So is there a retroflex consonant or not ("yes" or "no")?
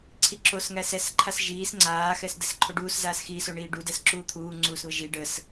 yes